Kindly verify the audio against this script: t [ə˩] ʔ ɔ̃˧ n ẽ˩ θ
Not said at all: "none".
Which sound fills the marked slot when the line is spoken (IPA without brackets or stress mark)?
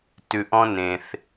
ʉ˩